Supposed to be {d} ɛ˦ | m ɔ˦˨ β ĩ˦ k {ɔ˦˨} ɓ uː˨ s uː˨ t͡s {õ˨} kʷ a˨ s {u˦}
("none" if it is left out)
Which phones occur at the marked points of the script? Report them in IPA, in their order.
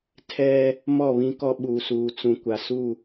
tʰ, ɔ˦, ũ˨, u˦˨

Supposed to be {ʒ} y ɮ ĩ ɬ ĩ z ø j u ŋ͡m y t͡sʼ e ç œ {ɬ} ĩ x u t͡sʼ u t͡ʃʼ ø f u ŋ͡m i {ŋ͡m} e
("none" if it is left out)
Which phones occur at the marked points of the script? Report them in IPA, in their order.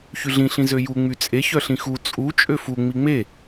ç, ɬ, ŋ͡m

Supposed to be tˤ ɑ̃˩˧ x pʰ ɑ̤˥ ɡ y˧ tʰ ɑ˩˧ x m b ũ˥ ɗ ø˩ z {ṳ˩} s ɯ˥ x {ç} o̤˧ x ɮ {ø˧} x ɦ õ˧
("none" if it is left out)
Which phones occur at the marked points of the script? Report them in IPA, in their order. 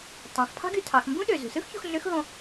ṳ˩, ç, ø˧˥

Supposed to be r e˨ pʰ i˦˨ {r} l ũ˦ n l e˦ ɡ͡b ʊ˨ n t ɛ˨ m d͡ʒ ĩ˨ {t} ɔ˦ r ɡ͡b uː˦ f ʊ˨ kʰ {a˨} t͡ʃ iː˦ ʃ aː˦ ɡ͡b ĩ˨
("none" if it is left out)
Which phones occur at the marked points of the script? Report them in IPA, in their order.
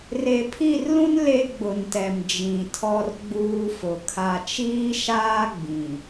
r, tʰ, a˨

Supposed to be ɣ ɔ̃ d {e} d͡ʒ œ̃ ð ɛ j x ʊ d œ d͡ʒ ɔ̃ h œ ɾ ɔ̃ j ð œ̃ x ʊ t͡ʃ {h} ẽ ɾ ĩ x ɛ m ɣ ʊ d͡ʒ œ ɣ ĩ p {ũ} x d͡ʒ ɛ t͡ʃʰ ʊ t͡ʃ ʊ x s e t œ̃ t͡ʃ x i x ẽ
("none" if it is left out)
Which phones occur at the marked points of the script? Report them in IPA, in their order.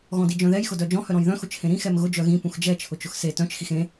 i, h, ũ

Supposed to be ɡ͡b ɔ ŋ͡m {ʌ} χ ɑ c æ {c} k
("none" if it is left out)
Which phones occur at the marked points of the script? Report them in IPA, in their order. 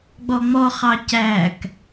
ɔ, none

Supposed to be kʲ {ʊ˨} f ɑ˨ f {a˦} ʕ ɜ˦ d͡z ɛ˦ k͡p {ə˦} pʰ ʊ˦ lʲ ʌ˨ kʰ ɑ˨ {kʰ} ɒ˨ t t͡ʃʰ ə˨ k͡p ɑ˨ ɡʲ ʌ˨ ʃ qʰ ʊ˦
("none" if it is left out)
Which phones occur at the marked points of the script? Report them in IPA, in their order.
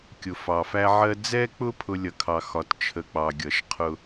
ʊ˨, æ˦, ʊ˦, x

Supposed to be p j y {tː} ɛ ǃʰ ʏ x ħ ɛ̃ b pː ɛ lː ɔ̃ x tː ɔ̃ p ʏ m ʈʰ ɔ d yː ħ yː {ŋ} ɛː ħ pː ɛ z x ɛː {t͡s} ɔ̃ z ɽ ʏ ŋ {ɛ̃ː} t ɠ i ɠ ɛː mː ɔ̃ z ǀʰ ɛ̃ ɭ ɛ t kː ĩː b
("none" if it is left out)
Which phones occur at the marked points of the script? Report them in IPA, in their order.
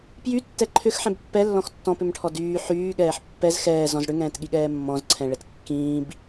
tː, ɠ, z, ɛ̃ː

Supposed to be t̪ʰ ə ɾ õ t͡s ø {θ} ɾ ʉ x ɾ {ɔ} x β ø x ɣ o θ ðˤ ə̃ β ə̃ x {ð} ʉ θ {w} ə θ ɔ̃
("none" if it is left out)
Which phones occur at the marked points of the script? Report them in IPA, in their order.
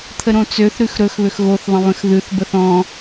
θ, ɵ, ð, b

